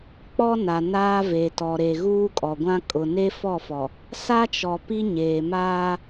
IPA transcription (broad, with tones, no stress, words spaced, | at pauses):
k͡pɔ˦na˨ naː˦ve˨tɔ˨ɾe˨ ɣuː˦kʼɔ˨ɡʷã˦ kʼʊ˨ ne˦fɔ˦˨fɔ˨ | sa˦t͡ʃɔ˨ pi˦ɲeː˨ maː˦